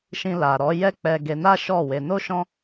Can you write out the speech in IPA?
ʃ ĩ˧ l a˨ ɾ ɔ˨˦ j ɛ˦ k͡p ɛ˧ ɡ e˧ n a˦ ʃ ɔ˦˨ w e˧ n o˦ ʃ ɔ̃˦

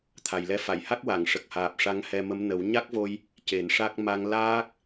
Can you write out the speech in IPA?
t̪ʰ a˨˩ j l ɛ˧ f a˨˩˨ j h a˦˥ k̚ w a˨˩˨ ŋ ʂ ə˨˩ k̚ h aː˨˩ p̚ ʂ a˧˥ ŋ h ɛ˧ m ə˧˥ m n ə˨˩˦ w ɲ a˦˥ k̚ v o˧ j | c e˨˩˦ n ʂ a˦˥ k̚ m a˧ ŋ l aː˦˥ k̚

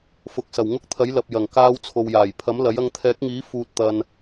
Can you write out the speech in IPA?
f ʊ˨ k̚ s ɐ˨˩ w ŋ ʊ˥ k̚ t̪ʰ ɐ˨˥ j l ɐ˨ p̚ j ɐ˨˩ ŋ k aː˧ w t͡sʰ o˨ w j aː˨˩ j pʰ ɐ˨˥ m l ɐ˨˥ j ɐ˧ ŋ t̪ʰ ɛː˨˥ k̚ ŋ iː˨˥ f uː˧ t̚ t̪ ɐ˧ n

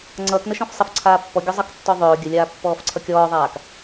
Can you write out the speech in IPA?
ŋ͡ǀ ʌː k n ə ʃ ɔ̃ f sˤ ə f ǀʰ aː pː ɔ ɡʲ ɔ zˤ ʌ k tː ɔ ðˤ ɵː ɡʲ ə lʲ aː pː ɔː f ǀʰ ʌ kʲ ɔː ðˤ aː k

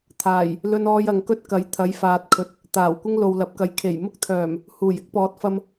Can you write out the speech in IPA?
t̪ʰ aː˨˩ j | l ɵ˥ n ɔː˥ j ɐ˨ ŋ k ɵ˥ t̚ k ɐ˨˥ j t̪ʰ ɐ˨˧ j f aː˨ t̚ kʰ ɵ˨ t̚ | t̪ aː˨˩ w kʷ ɪ˥ ŋ l o˨ w l ɐ˨˥ p̚ k ɐ˨ j kʰ e˨˩ j m ʊ˥ k̚ t̪ʰ œː˨˩ m | h uː˨˩ j ɪ˨˥ k̚ p ɔː˨ t̚ f ɐ˧ m

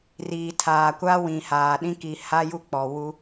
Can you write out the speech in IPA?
r iː˨ tʰ aː˨ kʷ a˦ w ĩ˨ h aː˨ ɗ ĩ˦ k i˨ h a˦ j u˦ k͡p ɔ˨ w u˦

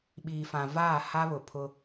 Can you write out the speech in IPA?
ɓ iː˨ f ã˨ v aː˦˨ h a˦ β ʊ˨ pʰ ʊ˦

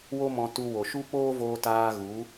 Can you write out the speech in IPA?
w o˦ m ɔ̃˧ t u˧ w o˨ ʃ u˦ k͡p oː˦ v oː˧ t aː˧ ɣ u˨˦

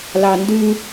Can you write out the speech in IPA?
l ɑ n d ʉ

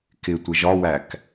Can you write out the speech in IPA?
k ɪ tʷ ɪ ʒ ɒ w æ k

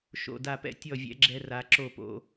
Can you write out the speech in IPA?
ʃ o̰˥˨ d a˥˨ p ɛ̰˥ tʲ ɔ˥˨ vʲ ɛ̰˥ ɡ͡ǁ ɛ˥ r a˧˥ ǁ o˥˨ p o̰˥

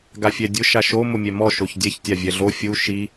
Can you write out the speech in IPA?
ɡ a fʲ ɛ dʲ ʊ ʃ a ʃ o m ʊ mʲ ɛ m ɔ ʃ o ç dʲ ɛ ç tʲ a vʲ ɛ ɮ o fʲ u ʃ i

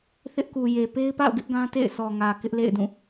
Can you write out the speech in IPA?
θ ɪ˦ ʔ k u˨ j e˨ p e˦ ɪ̯ p a̰˦˨ ʊ̯ ɡ ɪ˦ ʔ ɡ ã˦ t ḛ˦˨ ɪ̯ s ɔ˨ ŋ ä˨ k ɪ˦ ʔ l ḛ˦˨ ɪ̯ d ũ˦˨

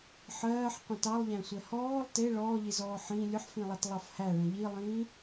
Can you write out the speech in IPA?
ħ ɜː ħ qʷ ə̃ t ɑ lˠ ʎ æ̃ sʷ ɛ h ɔː lˠ t e ɭ ɔː ʎ i z ɔː ħ ĩ lʲ ʊ ħ f ĩ lˠ a t lˠ ɑ f h æ ɭ ə̃ ʎ i lˠ ĩː

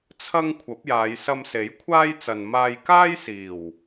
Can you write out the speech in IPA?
t͡sʰ ɐ˥ ŋ kʷʰ ɐ˨˥ p̚ j aː˨˧ j s ɐ˧ m s e˨˥ j kʷʰ aː˥ j t͡s ɐ˨ n m aː˧ j k aː˥ j s iː˨˩ w

